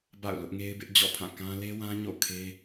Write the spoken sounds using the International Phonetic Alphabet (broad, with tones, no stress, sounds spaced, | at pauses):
b a̰˦˨ ʊ̯ l ʊ˦ ʔ ŋ e˦ ɪ̯ b ɪ˦ ʔ d͡ʑ ɔ̰˦˨ pʰ ã˦˨ k ã˦ l e˦ w ã˦ ɲ o̰˦˨ kʰ e˦